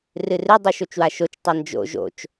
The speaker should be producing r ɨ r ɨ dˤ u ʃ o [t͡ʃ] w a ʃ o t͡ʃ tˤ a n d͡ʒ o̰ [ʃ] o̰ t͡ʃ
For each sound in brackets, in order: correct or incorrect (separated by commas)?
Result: correct, incorrect